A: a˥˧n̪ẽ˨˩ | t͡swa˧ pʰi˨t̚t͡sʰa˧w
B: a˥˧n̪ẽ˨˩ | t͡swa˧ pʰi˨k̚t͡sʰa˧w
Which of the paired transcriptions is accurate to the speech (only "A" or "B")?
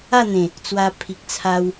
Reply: B